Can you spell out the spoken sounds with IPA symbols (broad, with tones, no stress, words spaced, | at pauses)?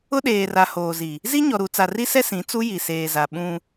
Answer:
ʊ˦ɗeː˨ra˨ hoː˨zi˨ | zi˦ɲɔ˨ɾu˨ t͡sa˨ri˦sɛ˦ sĩ˨˦t͡su˦ ji˨seː˨za˨ ɓũ˦